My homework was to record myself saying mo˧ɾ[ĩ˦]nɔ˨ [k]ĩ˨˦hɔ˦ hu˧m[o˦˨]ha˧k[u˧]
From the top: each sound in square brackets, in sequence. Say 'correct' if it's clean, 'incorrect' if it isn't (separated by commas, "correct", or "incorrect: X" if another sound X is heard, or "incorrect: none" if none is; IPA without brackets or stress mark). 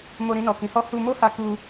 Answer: incorrect: ĩ˧, correct, incorrect: o˦, correct